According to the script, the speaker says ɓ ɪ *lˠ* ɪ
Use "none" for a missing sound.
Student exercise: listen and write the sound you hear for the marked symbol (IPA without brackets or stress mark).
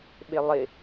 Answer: lˠ